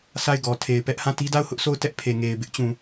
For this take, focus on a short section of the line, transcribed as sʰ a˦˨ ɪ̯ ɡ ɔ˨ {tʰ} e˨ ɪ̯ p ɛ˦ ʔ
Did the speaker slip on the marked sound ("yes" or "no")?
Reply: no